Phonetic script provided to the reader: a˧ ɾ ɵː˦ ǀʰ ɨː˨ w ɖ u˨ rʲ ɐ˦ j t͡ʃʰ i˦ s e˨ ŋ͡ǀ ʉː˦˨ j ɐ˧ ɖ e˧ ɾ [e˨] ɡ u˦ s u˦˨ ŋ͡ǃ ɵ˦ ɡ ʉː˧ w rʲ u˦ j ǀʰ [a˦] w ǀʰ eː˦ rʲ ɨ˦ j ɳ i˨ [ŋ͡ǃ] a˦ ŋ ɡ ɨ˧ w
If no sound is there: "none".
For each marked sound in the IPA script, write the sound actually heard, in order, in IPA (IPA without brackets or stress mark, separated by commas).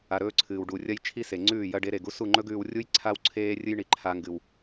e˨, a˦, ǃʰ